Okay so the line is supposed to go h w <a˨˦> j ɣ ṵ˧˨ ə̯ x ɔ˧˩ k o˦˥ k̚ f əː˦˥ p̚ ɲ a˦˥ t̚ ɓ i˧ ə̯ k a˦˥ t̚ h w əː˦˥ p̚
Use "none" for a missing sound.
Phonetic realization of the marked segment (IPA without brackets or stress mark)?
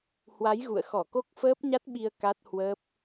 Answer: a˨˦